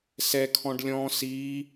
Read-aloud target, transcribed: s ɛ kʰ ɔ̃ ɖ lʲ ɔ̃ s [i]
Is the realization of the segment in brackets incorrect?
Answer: no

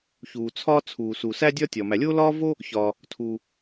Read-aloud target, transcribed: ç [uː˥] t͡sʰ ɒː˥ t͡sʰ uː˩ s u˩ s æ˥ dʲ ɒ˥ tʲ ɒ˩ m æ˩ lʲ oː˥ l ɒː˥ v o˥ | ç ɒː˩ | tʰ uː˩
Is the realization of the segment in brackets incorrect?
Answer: yes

